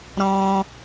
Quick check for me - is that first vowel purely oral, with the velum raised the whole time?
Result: no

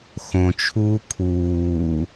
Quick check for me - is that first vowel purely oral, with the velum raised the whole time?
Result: no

